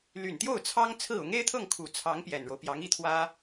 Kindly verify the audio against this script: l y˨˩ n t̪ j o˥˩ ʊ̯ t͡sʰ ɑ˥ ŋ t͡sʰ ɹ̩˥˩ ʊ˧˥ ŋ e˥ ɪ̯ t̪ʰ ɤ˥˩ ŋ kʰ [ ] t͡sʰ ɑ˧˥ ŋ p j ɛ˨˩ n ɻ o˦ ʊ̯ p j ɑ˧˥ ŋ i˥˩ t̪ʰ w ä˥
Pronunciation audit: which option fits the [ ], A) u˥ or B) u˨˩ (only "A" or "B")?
B